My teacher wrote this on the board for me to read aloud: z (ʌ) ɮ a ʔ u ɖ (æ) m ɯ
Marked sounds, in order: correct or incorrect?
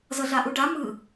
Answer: correct, incorrect: a

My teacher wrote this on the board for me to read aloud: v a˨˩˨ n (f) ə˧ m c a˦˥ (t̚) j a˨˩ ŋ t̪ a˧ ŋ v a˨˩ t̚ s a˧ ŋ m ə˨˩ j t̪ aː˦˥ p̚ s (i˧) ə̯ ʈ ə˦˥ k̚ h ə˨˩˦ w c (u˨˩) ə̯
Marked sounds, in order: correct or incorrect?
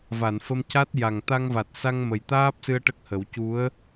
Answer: correct, correct, incorrect: ɨ˧, incorrect: u˧˥

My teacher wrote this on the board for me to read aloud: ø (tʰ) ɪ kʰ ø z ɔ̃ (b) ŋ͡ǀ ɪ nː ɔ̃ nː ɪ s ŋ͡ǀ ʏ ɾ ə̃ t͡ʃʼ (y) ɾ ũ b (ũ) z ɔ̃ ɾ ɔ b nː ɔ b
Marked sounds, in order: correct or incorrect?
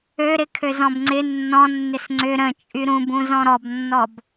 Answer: incorrect: ɾ, correct, correct, correct

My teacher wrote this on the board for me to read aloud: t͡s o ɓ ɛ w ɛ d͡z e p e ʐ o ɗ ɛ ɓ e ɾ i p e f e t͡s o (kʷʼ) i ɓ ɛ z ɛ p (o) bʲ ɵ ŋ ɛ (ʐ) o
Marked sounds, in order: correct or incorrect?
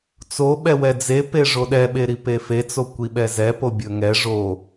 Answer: incorrect: kʷ, correct, correct

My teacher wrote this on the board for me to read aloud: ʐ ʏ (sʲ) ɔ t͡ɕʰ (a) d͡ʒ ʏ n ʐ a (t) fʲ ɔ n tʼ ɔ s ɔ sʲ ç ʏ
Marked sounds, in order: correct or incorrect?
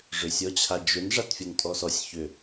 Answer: correct, correct, correct

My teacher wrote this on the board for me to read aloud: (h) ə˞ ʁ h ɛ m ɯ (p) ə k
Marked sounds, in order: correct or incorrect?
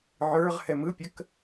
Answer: incorrect: ʕ, incorrect: pʲ

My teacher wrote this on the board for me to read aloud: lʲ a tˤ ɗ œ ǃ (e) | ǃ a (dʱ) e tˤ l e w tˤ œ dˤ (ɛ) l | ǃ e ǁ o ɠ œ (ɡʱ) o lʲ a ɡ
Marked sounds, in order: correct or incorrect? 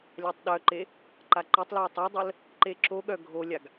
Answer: correct, incorrect: ǃ, incorrect: œ, correct

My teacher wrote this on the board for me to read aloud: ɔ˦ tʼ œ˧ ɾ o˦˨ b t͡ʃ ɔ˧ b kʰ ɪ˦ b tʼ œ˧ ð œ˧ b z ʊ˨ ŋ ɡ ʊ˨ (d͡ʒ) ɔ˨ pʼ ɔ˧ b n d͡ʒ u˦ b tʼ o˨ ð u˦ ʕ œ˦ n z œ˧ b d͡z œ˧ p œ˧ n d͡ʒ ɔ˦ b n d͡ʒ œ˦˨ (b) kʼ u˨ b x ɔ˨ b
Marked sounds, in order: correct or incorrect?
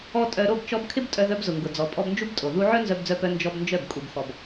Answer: incorrect: d͡z, correct

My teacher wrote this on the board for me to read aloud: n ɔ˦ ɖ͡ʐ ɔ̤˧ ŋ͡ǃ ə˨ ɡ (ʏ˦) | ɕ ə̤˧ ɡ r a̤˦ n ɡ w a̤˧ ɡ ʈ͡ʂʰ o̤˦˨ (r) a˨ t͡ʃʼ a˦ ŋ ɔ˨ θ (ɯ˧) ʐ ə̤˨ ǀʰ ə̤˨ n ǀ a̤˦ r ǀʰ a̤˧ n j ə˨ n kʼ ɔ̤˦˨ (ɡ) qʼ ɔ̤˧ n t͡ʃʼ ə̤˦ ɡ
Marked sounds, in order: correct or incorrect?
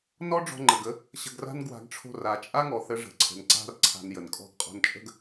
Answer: incorrect: ə˦, correct, incorrect: ə˧, correct

